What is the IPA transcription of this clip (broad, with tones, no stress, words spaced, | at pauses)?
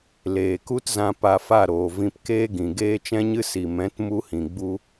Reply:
leː˨ku˦tzã˧ pa˧fa˦˨ɾoː˨ vĩ˧pkeː˦ɡĩ˨ ɡeː˦t͡ʃɛ̃˦ɲɨ˦ si˨mɛ̃˨˦t mu˧hĩ˨ɡ͡bu˧